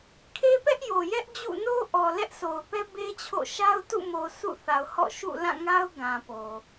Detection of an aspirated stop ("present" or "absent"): present